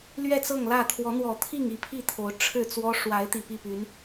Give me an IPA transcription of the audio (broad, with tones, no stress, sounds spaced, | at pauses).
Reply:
l ɥ ɛ˥˨ t͡s ɤ˥˨ ŋ l ä˥˨ t̪ʰ w ɔ˨˦ n̪ w ɔ˨˩ t̪ʰ i˥˨ ŋ i˥˨ pʰ i˥˨ t̪ʰ o˨˦ ʊ̯ ʈ͡ʂʰ ɻ̩˥˨ t͡s w ɔ˦ ʂ w a˨˦ ɪ̯ t̪ i˨˩ p i˥˨ p y˨˦ n